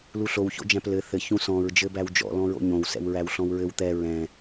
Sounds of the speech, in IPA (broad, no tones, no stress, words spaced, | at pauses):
luɬow ço̰d͡ʒæ̃plɘ θɘ çũsɔ̃ɹ d͡ʒɘbæwd͡ʒɔ̰ lɔ̃ɹo̰ɲõw sɛ̰wɹæwɬɔ̃wɹɘw t̪ɛ ɹɛ̃